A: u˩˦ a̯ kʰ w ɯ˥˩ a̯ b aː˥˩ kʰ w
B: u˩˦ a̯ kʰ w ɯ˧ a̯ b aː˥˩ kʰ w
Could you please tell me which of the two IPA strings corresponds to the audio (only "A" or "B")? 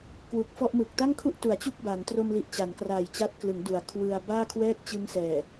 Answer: B